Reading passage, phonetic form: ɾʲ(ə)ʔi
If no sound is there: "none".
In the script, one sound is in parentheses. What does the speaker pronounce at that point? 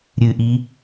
ɨ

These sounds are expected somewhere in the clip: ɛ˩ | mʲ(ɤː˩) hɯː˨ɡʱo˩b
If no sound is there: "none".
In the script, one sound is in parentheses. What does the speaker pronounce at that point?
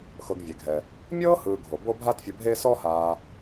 ɤː˥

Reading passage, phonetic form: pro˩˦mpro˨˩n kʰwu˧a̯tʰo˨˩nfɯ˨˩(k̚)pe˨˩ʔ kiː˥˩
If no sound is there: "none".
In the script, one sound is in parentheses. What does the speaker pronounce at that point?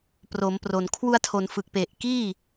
k̚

